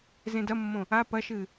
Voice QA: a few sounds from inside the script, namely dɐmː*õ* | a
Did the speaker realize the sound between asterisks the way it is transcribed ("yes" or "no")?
yes